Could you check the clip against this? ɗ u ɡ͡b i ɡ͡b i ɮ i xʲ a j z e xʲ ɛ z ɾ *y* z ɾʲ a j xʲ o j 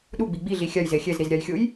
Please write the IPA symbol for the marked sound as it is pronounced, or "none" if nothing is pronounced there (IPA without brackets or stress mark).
i